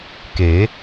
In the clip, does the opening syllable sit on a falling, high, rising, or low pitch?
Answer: rising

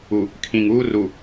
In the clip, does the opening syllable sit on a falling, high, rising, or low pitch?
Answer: low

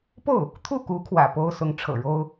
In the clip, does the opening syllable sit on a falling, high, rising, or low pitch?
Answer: falling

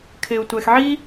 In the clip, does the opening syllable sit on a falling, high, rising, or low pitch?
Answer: low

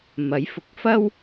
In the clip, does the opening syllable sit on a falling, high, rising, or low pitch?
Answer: rising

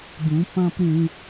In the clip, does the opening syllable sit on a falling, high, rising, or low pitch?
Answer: rising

